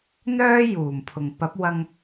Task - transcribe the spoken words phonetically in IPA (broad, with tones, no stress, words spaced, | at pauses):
n̪œː˥juː˨˩m pʰʊ˨˩ŋ pɐ˨˥p̚wɐ˧ŋ